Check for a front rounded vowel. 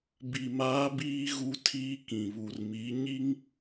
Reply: absent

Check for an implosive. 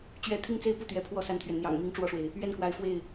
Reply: absent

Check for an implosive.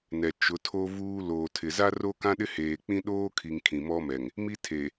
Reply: present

